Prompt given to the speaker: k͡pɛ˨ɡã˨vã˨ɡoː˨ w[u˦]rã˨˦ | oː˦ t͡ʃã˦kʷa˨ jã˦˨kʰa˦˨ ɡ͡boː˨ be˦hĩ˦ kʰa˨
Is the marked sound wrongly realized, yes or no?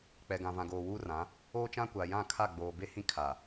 yes